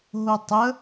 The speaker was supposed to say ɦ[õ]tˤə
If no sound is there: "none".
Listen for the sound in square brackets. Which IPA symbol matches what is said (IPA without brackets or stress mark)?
o